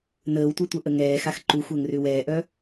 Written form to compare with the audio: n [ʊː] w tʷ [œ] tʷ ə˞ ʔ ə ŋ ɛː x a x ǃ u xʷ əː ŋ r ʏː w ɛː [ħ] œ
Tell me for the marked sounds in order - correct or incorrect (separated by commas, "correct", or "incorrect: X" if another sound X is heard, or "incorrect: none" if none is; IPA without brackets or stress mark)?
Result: incorrect: əː, correct, incorrect: ʔ